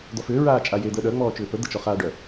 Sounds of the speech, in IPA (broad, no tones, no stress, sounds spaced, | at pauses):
d̪ ɔ f ʏː ɹ aː t͡ʃʼ a j e d̪ əː ɗ œ ŋ͡m ɔː t͡ʃ ʏː p ə d̪ ə t͡ʃ ɔ χ aː ɖ œ